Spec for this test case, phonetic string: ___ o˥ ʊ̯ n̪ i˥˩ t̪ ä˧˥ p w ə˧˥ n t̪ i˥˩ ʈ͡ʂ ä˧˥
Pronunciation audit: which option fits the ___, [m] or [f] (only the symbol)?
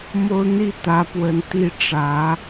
m